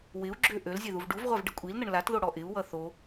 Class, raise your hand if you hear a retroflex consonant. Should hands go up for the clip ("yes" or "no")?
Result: yes